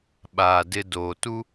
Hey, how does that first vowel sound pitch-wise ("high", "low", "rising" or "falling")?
low